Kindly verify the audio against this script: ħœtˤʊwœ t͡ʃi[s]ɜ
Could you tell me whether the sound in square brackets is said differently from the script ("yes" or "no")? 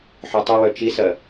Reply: no